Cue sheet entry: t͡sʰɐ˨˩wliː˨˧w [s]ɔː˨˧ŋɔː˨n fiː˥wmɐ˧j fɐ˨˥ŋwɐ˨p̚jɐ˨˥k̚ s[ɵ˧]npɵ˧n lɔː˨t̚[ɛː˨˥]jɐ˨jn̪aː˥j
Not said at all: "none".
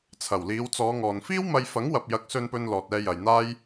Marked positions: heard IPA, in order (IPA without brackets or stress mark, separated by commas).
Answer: t͡s, ɵ˧, ɛː˧